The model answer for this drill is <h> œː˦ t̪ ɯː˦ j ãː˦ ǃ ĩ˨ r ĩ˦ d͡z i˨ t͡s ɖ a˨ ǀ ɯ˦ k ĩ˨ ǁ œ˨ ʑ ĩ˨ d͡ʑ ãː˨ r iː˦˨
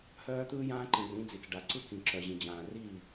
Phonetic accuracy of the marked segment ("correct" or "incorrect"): correct